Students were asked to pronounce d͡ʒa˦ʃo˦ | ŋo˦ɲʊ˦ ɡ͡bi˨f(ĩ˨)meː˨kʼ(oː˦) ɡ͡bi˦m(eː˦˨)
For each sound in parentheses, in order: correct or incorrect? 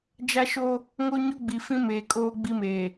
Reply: incorrect: ĩ˦, correct, incorrect: eː˨

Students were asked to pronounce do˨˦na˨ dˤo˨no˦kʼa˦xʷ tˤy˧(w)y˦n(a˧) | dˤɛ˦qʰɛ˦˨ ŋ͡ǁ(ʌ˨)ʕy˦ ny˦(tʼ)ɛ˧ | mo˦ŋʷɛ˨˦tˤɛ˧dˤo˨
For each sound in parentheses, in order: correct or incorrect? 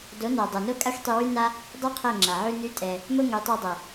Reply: correct, incorrect: a˦, incorrect: a˨, correct

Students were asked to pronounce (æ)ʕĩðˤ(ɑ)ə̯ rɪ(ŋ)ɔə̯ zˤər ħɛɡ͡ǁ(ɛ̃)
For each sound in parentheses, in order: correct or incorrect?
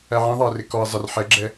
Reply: correct, correct, incorrect: k, incorrect: ɛ

